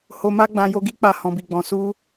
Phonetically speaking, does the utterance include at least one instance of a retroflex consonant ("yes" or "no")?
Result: no